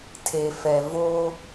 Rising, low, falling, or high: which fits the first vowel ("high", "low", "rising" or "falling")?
low